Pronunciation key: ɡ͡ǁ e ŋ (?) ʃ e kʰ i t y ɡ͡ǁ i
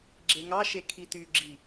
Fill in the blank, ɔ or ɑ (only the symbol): ɑ